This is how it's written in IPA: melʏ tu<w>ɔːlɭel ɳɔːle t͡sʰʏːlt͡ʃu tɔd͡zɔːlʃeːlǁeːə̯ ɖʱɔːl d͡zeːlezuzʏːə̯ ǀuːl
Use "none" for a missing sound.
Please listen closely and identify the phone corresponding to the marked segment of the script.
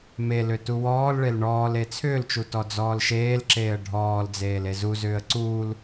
w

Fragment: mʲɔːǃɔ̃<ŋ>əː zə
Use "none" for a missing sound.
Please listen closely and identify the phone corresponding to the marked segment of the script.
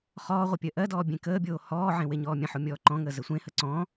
ŋ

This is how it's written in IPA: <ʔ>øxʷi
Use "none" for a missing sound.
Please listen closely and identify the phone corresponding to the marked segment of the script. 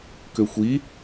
k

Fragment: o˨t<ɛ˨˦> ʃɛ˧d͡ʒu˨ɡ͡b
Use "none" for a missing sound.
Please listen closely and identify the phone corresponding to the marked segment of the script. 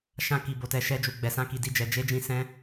ɛ˨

